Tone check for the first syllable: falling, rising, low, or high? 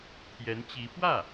rising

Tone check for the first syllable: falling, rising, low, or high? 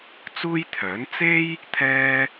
high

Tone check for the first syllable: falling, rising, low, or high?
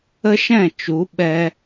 high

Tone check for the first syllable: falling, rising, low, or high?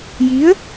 rising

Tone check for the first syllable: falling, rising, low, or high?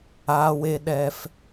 low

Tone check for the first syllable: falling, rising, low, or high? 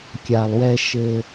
low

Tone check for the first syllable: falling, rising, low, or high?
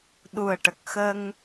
low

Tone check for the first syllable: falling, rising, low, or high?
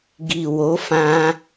low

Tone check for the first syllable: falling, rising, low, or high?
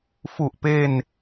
low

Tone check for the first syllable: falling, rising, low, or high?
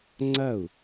falling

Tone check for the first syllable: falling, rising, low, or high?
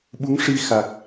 rising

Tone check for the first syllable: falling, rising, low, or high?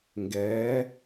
rising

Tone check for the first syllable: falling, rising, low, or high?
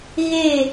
falling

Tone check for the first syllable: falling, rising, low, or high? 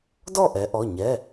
falling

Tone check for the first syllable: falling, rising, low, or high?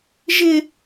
high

